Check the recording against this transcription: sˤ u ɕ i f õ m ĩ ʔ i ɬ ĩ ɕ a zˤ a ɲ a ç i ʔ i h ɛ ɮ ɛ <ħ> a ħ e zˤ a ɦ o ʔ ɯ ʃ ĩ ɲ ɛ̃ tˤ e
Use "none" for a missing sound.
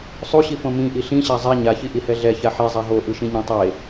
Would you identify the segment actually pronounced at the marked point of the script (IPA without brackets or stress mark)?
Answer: ç